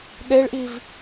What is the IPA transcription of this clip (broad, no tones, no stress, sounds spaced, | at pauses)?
ɗ e ɭ ʔ i v